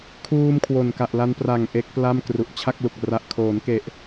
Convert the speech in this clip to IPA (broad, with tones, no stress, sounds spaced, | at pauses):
kʰ uː˧ m kʰ w o˨˩ n k a˨˩ ʔ l a˧ n p r a˨˩ ŋ ʔ e˦˥ k̚ p l a˥˩ m k r u˨˩ ʔ t͡ɕʰ a˥˩ k̚ l u˨˩ k̚ r a˨˩ ʔ kʰ oː˩˦ n k e˨˩ ʔ